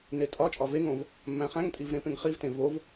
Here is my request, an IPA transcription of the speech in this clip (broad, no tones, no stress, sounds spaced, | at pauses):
n e tʼ ɒ t͡ʃʼ ɒ v e ŋ õ v | mː æ̃ χ æ̃ ŋ tʼ i v ɾ ẽ p ẽ ŋ χ i v t ẽ v o v